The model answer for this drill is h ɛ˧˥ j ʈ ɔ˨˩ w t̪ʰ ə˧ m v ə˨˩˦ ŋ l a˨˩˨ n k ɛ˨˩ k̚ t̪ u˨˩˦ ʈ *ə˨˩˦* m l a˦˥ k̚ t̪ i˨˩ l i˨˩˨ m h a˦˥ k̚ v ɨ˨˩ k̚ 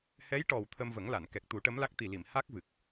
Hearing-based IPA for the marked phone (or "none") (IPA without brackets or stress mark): ə˧˥